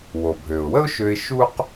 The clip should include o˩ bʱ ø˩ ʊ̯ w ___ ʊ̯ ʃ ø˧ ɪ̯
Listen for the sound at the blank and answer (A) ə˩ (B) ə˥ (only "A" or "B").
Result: B